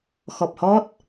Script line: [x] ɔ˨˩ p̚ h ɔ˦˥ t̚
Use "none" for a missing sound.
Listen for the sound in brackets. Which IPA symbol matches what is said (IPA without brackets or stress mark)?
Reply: x